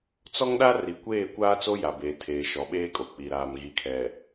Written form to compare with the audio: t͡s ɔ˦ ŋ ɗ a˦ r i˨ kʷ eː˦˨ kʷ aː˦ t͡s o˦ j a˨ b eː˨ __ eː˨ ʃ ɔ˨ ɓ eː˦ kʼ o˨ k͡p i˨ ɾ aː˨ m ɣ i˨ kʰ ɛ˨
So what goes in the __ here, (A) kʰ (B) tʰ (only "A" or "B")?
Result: B